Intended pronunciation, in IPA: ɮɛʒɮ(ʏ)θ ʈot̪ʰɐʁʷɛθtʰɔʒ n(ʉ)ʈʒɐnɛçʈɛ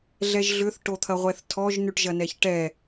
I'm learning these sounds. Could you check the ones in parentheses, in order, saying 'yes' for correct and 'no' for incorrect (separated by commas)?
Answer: yes, yes